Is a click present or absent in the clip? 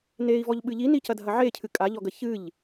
absent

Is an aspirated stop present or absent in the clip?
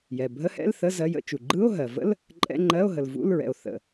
absent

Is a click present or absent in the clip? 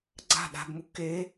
present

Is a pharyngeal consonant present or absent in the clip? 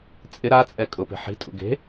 present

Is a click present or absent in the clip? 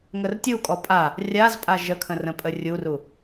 absent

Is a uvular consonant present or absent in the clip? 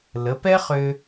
present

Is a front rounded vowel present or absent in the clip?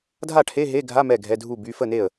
present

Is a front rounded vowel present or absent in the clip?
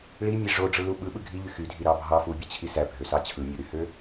present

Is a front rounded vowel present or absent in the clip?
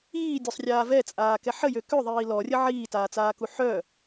present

